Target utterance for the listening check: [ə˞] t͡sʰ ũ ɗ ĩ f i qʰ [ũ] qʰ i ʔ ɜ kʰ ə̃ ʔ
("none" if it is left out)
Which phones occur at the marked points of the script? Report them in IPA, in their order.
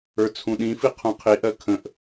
ə˞, ũ

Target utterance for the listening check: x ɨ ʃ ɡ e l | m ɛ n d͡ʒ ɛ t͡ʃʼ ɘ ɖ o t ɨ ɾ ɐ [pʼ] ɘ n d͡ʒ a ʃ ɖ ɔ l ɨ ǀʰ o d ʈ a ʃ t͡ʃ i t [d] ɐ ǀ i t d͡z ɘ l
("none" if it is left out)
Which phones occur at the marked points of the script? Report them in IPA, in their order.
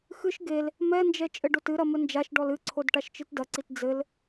m, d

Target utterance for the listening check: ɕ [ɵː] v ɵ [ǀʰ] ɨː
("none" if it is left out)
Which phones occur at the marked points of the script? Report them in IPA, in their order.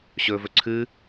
ɵː, ǀʰ

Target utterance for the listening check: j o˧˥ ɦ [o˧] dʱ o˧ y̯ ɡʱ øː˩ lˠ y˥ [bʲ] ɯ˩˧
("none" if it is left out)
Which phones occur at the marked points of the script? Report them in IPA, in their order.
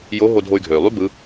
o˧, b

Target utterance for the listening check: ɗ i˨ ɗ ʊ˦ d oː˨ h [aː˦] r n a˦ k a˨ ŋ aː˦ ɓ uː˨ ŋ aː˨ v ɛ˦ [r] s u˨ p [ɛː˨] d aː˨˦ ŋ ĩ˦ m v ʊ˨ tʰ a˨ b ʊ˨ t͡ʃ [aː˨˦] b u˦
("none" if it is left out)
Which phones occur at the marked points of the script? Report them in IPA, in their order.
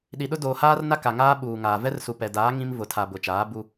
aː˦, r, ɛ˨, aː˨˦

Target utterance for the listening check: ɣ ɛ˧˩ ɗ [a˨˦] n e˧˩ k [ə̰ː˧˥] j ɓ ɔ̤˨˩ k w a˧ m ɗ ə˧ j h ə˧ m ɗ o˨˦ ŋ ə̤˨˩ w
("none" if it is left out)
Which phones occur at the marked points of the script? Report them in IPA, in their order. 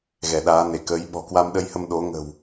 aː˨˦, əː˨˦

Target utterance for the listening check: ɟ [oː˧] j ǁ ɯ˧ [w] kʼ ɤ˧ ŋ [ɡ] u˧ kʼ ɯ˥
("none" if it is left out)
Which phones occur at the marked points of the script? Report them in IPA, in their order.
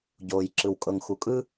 oː˧, w, x

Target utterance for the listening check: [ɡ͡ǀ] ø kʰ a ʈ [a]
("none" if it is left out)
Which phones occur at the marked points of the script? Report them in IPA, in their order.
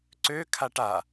ǀ, a

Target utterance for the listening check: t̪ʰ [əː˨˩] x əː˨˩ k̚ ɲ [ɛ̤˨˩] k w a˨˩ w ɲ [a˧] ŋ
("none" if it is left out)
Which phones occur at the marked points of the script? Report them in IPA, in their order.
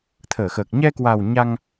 əː˧˩, ɛ˧, a˧

